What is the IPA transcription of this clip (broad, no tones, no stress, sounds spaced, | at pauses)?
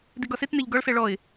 d i ɡ ɒ s e t n̪ ɛ ʎ ɡ ɒ ɭ s ɛ ɭ ɔ ɪ̯